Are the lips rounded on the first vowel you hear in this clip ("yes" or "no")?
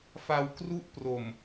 no